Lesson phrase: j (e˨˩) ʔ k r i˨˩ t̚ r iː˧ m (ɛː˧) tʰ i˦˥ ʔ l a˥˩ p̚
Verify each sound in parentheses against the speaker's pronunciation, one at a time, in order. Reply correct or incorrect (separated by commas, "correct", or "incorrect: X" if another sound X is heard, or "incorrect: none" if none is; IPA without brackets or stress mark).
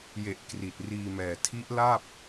correct, incorrect: ɛː˨˩